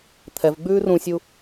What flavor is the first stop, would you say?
aspirated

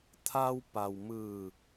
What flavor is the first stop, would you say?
aspirated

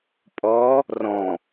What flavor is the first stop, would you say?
ejective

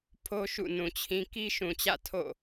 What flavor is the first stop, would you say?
aspirated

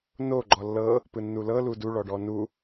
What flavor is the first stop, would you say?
click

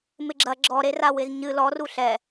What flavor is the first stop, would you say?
click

